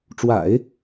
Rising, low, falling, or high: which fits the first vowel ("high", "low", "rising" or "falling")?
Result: low